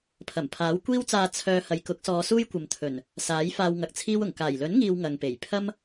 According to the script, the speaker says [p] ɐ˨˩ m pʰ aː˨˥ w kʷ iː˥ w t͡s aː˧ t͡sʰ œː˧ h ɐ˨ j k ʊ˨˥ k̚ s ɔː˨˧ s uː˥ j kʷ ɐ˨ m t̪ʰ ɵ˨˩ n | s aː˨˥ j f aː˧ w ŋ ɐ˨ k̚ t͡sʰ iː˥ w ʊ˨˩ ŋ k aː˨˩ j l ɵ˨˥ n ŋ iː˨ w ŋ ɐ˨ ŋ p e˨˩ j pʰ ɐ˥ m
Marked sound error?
yes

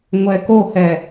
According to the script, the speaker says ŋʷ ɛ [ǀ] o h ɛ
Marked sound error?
yes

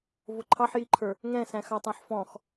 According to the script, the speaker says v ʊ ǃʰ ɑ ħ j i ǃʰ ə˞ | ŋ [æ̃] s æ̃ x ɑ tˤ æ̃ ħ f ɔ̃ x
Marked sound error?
yes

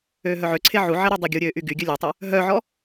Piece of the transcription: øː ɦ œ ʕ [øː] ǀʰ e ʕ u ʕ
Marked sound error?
yes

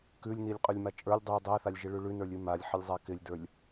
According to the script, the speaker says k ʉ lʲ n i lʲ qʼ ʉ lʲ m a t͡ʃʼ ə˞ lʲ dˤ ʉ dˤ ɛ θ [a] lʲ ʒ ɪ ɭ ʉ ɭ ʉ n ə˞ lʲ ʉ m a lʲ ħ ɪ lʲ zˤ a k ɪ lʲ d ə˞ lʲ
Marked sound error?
no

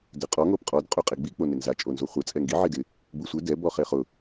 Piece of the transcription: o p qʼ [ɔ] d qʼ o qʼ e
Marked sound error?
no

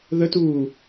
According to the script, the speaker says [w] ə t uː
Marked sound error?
yes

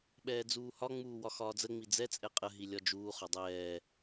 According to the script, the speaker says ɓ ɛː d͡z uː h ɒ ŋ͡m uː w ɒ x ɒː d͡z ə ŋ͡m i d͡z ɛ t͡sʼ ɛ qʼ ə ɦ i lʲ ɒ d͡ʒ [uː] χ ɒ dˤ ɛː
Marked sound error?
no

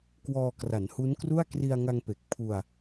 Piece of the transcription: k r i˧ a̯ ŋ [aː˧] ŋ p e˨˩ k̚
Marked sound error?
yes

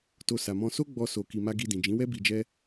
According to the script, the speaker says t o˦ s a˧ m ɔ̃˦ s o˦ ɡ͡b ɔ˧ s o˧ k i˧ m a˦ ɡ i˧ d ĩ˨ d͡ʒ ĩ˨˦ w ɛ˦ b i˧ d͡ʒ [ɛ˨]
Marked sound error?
yes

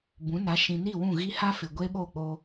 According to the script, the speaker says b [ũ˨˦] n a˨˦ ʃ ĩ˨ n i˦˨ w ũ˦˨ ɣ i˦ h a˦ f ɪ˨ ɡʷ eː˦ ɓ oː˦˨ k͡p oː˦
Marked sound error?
no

